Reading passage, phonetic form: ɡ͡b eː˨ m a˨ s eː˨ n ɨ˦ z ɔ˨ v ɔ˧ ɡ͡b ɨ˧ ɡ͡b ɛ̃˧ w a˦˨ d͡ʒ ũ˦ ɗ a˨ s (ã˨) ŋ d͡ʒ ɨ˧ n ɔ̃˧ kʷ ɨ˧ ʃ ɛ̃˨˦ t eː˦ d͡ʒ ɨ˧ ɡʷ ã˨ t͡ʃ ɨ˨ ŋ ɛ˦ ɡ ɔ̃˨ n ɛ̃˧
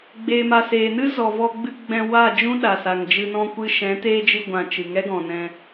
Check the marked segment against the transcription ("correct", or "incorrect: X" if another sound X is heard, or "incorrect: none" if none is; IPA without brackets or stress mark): incorrect: a˨